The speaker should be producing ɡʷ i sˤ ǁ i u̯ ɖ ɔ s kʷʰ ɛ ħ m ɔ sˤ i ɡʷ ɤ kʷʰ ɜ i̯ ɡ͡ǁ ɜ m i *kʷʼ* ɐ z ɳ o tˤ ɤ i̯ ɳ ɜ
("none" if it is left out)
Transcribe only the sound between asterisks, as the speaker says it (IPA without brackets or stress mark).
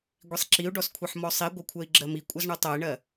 kʷʼ